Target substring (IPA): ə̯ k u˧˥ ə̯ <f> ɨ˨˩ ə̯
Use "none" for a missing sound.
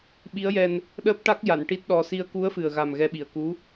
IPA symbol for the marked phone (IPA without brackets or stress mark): f